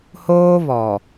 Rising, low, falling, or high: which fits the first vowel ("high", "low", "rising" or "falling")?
high